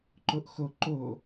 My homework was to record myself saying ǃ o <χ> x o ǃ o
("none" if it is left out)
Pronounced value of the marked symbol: ʔ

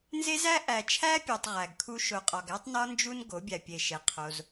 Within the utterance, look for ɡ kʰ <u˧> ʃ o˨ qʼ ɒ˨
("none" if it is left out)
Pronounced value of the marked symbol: u˦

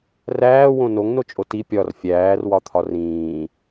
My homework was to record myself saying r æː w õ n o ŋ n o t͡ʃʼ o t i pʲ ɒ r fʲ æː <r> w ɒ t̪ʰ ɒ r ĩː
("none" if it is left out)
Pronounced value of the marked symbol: r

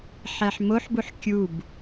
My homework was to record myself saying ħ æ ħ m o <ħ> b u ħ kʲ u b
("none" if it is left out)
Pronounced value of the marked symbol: ħ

